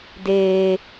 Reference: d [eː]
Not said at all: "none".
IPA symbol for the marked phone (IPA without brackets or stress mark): eː